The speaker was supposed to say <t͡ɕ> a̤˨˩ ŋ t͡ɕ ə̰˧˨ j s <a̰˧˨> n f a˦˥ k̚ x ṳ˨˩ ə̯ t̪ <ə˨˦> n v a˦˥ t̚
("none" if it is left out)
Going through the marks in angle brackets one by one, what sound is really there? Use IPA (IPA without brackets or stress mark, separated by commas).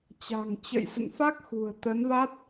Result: t͡ɕ, ə̰˧˨, ə˨˦